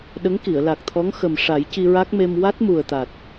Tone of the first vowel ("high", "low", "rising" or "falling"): rising